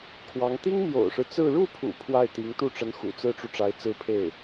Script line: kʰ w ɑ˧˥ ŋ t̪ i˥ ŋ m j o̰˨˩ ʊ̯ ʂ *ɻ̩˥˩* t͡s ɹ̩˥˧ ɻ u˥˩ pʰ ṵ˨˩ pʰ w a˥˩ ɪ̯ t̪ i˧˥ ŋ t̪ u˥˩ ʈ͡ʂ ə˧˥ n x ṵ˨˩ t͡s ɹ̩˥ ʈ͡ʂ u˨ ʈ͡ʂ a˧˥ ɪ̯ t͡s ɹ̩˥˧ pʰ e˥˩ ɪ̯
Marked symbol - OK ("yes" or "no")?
no